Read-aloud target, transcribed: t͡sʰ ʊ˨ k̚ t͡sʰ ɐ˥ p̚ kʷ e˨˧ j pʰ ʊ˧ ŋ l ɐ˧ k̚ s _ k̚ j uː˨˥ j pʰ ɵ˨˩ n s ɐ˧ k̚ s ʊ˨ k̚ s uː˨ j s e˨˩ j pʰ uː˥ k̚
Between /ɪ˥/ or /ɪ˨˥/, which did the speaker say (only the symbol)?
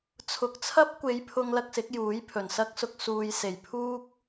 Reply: ɪ˨˥